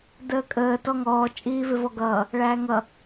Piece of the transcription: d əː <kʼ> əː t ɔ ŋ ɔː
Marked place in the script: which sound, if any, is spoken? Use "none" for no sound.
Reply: kʼ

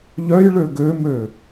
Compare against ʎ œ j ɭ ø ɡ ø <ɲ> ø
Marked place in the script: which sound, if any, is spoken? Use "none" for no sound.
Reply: m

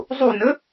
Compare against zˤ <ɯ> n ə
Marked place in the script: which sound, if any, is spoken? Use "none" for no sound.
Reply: u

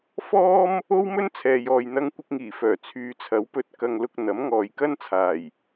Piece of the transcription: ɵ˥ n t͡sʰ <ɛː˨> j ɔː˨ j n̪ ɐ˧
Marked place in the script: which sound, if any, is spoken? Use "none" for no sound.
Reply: ɛː˨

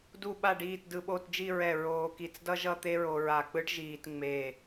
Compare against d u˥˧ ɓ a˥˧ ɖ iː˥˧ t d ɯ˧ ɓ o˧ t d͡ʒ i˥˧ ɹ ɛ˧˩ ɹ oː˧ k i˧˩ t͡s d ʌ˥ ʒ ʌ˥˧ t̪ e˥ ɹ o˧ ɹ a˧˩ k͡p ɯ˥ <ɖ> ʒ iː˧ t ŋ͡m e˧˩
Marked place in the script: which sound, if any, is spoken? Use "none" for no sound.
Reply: ɖ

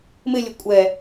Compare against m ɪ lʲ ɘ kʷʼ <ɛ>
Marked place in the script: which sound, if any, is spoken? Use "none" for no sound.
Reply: ɛ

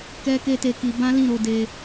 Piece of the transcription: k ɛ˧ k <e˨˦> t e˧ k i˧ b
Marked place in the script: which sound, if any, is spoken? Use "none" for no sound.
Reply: e˦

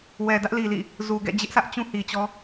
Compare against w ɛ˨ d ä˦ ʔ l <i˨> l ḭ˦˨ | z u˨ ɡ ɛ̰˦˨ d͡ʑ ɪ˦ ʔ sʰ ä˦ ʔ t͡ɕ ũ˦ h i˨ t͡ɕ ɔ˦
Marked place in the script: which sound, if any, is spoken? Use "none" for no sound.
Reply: i˨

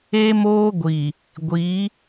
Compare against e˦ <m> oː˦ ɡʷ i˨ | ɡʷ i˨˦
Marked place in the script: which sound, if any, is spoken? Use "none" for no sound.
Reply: m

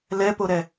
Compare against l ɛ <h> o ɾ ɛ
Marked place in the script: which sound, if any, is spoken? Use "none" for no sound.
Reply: p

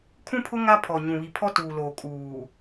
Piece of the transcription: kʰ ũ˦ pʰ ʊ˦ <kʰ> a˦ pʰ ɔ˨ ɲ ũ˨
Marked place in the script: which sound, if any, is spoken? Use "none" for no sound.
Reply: ŋ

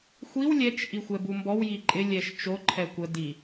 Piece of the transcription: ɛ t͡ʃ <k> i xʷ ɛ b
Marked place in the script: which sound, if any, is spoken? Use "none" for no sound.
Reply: ʔ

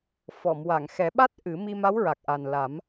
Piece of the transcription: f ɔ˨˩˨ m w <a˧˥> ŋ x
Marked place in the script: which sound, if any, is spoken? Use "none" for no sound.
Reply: a˨˩˨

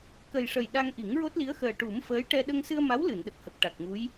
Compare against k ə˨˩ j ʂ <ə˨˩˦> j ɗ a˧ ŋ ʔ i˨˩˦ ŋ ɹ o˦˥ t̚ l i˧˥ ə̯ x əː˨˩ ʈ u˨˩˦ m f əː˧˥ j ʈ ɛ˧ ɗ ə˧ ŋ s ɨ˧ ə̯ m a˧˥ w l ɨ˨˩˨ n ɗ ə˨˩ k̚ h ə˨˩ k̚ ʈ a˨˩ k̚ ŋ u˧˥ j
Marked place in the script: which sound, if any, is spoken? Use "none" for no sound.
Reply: ə˨˩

